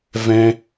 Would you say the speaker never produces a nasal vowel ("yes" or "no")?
no